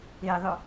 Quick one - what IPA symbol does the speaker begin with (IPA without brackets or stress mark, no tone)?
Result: e